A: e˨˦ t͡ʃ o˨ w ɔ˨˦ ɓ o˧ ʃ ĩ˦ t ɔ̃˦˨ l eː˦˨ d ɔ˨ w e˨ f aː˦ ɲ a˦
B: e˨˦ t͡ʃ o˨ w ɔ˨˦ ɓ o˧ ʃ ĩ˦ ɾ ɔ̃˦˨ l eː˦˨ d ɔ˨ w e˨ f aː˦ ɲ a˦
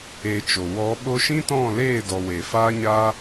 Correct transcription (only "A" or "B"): A